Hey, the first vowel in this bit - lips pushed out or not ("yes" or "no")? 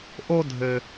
yes